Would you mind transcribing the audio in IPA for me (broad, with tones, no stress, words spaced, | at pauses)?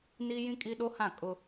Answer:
ni˦ jĩ˦kʼi˦ɗo˦hã˦˨ kʼʊ˦